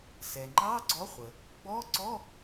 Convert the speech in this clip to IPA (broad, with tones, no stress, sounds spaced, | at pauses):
s ɛ˩ ŋ͡ǃ ɑ˧˥˧ ɡ͡ǀ ɔ˨˥ χʷ ə˩ | ɡ͡b ɔ˧˥˧ ǀ ɔ˧˥˧